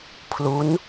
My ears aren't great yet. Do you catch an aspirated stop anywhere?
yes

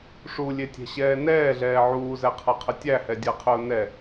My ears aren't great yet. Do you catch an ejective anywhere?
no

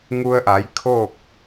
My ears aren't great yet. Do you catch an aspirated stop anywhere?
yes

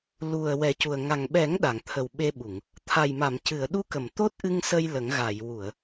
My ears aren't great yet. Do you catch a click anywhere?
no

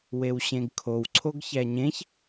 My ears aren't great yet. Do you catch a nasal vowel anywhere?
yes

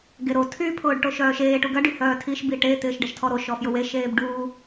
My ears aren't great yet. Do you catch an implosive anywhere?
no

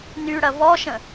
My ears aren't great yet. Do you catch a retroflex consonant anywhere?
yes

